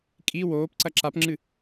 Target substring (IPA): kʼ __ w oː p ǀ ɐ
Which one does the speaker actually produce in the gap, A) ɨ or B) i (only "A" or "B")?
B